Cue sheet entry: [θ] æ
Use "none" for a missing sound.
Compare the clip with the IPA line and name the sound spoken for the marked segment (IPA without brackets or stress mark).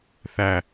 θ